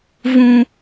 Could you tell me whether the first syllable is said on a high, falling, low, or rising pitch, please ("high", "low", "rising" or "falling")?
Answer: high